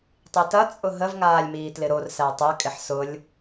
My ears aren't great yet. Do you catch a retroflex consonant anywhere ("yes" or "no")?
no